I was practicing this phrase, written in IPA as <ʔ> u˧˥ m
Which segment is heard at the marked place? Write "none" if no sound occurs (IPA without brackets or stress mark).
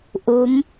ʔ